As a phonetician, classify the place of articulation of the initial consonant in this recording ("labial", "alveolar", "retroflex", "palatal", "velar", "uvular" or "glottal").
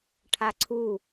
retroflex